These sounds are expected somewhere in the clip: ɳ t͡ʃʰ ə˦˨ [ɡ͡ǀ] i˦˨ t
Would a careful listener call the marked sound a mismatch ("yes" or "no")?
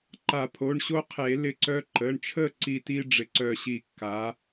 yes